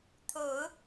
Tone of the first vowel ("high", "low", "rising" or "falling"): low